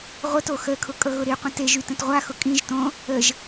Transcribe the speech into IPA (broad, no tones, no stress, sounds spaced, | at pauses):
ʁʷ ə t o x ə kʰ ʊ kʼ ɤ ɣ ʊ ɾ i qʷ ə̃ t e ʒ y t ə̃ t ʁʷ a x ʊ kʼ ĩ ʒ t õ | ə ʒ